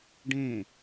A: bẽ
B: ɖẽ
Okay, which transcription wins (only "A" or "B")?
B